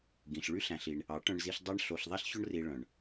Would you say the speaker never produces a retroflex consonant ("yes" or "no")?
no